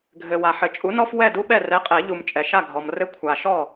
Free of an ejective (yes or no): no